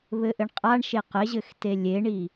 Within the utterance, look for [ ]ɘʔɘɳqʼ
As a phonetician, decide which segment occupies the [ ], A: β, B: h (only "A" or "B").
A